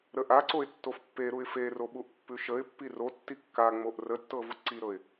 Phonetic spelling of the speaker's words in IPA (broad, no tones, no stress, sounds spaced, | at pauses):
ɾ ə ʔ a ǀ o ɪ̯ tː o f pː e ɾ u ɪ̯ f e r o ɓ u ʔ pː ʉ ʃ ə ɪ̯ pː i r o tː i kː a ŋ͡m o ʔ r ə tː ɤ v u ǀ i ɾ ɤ ɪ̯